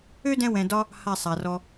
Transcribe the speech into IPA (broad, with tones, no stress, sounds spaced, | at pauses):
ø˦ d ɛ̃˧ w ɛ̃˨ d ɒ˧ | h a˦˨ sˤ a˨ r ɔ˧